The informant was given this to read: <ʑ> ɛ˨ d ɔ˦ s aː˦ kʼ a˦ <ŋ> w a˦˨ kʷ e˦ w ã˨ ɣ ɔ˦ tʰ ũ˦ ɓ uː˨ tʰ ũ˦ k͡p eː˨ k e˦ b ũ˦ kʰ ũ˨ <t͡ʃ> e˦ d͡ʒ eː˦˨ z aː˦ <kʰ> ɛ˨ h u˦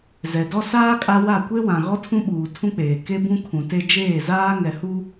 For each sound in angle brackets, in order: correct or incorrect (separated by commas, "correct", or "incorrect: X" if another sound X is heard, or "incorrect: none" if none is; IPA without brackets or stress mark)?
incorrect: z, incorrect: none, incorrect: t, incorrect: ŋ